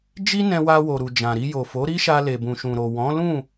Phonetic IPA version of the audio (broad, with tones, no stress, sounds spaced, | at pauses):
d͡ʒ i˦ n ɛ̃˧ w a˧ w o˨ ɾ u˨ d͡ʒ ã˨ ɾ i˧ j o˨ f o˨˦ ɾ i˦ ʃ a˧ l e˨ b ũ˨ ʃ ũ˨ ɾ o˨ w ɔ̃˨˦ l ũ˦˨